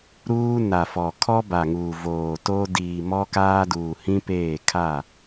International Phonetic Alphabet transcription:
ɾ uː˦ n a˨ f ɔ˨ kʰ ɔ˦ b a˨ ŋ uː˨ v oː˨ t o˦ d iː˨ m ɔ˦ k aː˦ d uː˨ h ĩ˦ p eː˦˨ kʰ a˦˨

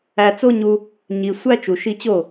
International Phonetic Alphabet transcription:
æ˧ t͡s o˦ ɲ u˧ | ɲ i˨ sʷ æ˦ t͡ʃ u˨ ʃ i˧ t͡ɕ o˦˨

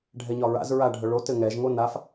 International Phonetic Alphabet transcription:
ɖʱ ɛ ɲ ɒ ɹ a̰ z ɹ a ɖʱ œ ɭ o t ɘ ŋ ɛ ʒ ŋ o n a f

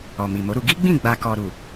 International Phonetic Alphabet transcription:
ɔ˨ m i˨ m o˨˦ ɾ u˧ ɡ i˦ ɡ͡b ĩ˦˨ ɡ͡b a˨ k ɔ˨ ɾ u˨

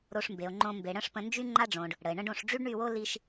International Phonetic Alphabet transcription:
ɾ o˧ ʂ m b e˨ o̯ ŋ͡ǃ õ˧ m b e˨ ɽ ə̃˦ ʂ p ə̃˧ n d͡ʒ y˦ ŋ͡ǃ a˦ ɖ͡ʐ õ˨ ɖ | ɽ ə˨ e̯ ɳ ə̃˦ ɖ õ˧ ʂ ɖ͡ʐ y˦ ɖ ɳ y˦˨ w o˦ l i˧ ʃ

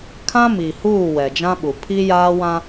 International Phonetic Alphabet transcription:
kʰ ã˦ m i˨ h uː˦˨ w ɛ˨ d͡ʒ ã˦ ɓ u˨ pʰ i˦ j aː˦ w ã˦

